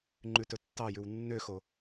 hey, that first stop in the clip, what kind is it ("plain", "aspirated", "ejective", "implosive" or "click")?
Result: click